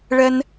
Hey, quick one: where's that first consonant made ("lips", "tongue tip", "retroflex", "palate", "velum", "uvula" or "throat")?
retroflex